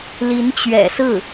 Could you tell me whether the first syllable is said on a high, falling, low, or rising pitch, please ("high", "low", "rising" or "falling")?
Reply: rising